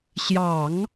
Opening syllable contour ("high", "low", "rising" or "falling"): low